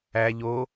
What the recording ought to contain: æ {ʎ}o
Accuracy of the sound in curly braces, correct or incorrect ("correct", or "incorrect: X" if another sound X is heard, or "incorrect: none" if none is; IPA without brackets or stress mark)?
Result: correct